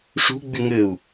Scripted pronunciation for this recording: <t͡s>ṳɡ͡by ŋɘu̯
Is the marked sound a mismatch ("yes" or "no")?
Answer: yes